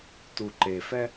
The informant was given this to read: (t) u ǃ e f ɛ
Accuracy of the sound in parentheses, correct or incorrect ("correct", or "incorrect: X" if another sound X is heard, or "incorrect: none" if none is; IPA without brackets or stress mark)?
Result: correct